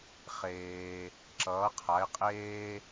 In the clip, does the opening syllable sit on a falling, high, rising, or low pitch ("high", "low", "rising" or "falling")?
low